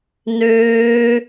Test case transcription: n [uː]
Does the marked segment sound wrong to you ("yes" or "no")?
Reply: yes